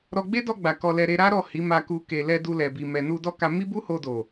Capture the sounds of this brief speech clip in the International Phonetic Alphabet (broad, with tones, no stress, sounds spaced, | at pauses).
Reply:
ɾ ɔ˧ ɡ͡b e˦ d ɔ˧ ɡ͡b a˨ k ɔ˧ l ɛ˧ ɾ e˧ ɾ a˦ ɾ ɔ˦˨ h i˨˦ m a˧ k u˧ k e˨ l ɛ˧ d u˧ l ɛ˨ b i˨ m ɛ˨ n u˧ d ɔ˦ k a˧ m i˦ b u˦ h o˧ d o˨